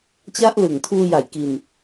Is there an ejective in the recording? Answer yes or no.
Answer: no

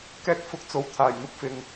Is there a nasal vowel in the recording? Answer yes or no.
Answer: no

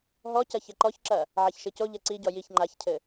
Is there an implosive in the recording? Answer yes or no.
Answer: no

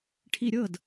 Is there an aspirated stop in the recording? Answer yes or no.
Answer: yes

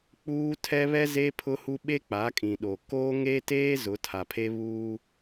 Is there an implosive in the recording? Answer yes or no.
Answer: yes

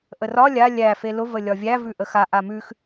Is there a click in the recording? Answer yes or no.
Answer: no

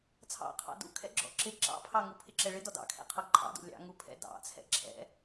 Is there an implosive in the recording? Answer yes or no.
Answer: no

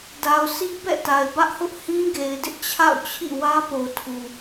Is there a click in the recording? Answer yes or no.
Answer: no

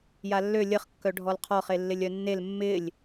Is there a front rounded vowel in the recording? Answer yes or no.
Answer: yes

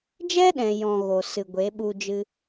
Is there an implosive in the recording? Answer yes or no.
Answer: yes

